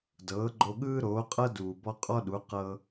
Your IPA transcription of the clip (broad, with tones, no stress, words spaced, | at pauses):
dɤː˩˥ɡ͡ǃo˧ ɠɯː˥ɾoː˩˥qʼɤ˥ duː˩bɔ˧ qʼɔ˥ɗu˩˥ qɤ˧